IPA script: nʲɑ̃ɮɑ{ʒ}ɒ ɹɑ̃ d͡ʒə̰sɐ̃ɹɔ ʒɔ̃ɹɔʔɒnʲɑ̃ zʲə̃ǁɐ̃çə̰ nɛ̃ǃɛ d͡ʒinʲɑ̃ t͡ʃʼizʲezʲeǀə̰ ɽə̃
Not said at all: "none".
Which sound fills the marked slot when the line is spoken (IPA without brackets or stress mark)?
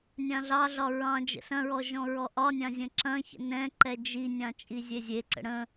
ɮ